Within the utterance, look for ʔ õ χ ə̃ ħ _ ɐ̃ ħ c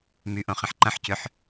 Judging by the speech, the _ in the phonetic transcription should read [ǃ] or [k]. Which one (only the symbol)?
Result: ǃ